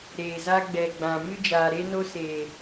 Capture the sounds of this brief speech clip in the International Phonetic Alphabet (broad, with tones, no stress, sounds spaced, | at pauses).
ɾ eː˨ z a˦ ɡ͡b ɛ˨ ɡ͡b ã˨ m ɨ˦ d͡ʒ aː˨ ɾ e˦ n o˦ s e˨